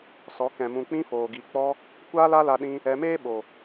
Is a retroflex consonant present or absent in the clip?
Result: absent